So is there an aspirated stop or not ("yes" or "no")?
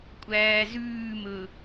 no